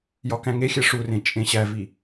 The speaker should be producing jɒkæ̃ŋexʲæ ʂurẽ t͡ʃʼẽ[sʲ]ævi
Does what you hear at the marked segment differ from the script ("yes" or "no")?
yes